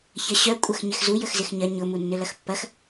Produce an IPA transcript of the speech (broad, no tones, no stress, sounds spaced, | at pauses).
ç ɐ ɕ œ kʷʼ ɐ x ɲ ɪ x z u j ə x z ɪ x ɲ ɐ ɲ ʊ m u nː ʏ l ɐ x pː ɐ x